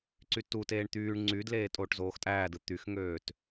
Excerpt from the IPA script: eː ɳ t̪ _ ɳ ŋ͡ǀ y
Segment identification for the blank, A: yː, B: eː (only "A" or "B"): A